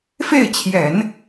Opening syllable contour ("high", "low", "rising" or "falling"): falling